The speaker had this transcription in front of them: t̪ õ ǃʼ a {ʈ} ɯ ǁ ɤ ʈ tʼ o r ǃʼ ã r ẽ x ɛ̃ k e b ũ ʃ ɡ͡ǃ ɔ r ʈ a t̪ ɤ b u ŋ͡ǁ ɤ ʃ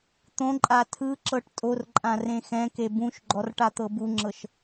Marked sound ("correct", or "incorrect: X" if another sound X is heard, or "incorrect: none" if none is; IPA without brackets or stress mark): incorrect: tʰ